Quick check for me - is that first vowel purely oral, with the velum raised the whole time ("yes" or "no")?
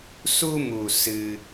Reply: yes